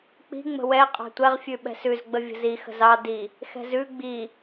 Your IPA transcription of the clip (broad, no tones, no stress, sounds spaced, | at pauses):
k͡p i̤ ŋ͡m ə̤ w ɛ qʼ ɑ̤ tʷ ɛ ʁ fʲ ʉ ɓ ɛ̤ s ʉ z ɡ͡b ə vʲ ə̤ z i x ə̤ z ɑ d i | x ɛ̤ z ʉ ɡ͡b i